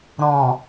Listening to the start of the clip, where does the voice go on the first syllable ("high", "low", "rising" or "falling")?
low